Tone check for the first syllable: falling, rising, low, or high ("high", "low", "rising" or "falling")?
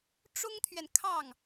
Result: high